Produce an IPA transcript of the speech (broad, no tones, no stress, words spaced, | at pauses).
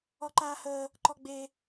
ɔǃaːhəː | ǃɔɡ͡be